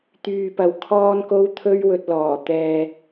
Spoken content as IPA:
t̪yː˨pɐ˨w kʰɔː˥nko˥w t̪ʰɵ˥ɥwɵ˧t̚lɔː˨˩ t̪ɛː˧

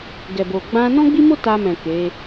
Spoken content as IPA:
ɡɛ˨bo˨ ɡ͡bã˧ nɔ̃˦ɡ͡bi˦mo˦ ta˧mɛ̃˨ ke˨˦

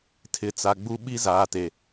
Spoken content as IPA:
tʰɪ˨t͡sa˨ ɡ͡bu˦ ɓi˦zaː˨te˨

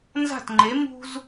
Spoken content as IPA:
nza̤˥˩tŋ͡ǃe˩˥ mṳ˥z

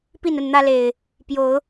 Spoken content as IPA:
pi˥˨nə˥˨nn̪ä˦le˨˩ɪ̯ | pjo˨˦ʊ̯

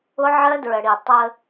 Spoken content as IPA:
ʊ˦ʕɜ˦dɹə˨ɽi˨ tˤə˦

